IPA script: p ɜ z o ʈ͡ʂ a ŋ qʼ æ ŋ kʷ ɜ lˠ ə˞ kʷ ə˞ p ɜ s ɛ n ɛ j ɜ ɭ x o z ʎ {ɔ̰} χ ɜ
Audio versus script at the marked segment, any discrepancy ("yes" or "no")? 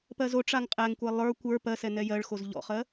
no